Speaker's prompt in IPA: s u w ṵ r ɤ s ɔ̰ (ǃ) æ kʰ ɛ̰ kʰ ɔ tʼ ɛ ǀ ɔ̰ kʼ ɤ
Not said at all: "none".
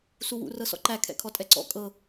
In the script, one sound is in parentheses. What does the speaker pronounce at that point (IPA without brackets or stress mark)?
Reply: ǃ